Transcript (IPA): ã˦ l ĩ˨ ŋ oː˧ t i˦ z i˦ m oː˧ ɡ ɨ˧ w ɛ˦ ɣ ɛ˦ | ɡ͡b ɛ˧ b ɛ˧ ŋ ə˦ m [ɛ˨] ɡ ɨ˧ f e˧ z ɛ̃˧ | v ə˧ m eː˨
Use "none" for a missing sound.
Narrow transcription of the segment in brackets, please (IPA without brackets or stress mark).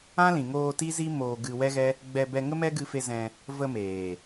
ɛ˦